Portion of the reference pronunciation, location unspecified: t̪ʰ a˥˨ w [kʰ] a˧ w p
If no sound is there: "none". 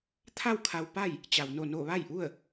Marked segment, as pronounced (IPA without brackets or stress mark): kʰ